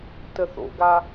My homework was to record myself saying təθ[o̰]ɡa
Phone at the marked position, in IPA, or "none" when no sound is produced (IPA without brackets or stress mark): o̰